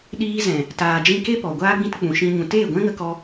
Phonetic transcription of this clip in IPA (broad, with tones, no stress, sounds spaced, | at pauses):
ɗ iː˧ z ɛ̃˨ | t aː˨ d͡ʒ ĩ˧ k e˦ p ɔ˨ ɡʷ aː˧ ɡ͡b ĩ˧ t k͡p ũ˨ ʃ ĩ˧ ɲ ũ˨ t eː˦˨ ɡʷ ɛ̃˦ ŋ ə˧ k ɔ˧